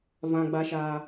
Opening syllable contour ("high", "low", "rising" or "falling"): low